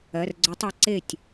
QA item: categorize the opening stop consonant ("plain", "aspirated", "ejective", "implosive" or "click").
click